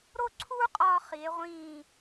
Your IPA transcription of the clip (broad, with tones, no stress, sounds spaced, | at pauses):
ɾ o˥˧ ǀʰ uː˥ qʼ ɒː˧ χ i˩˧ e̯ ʁʷ ĩː˧˩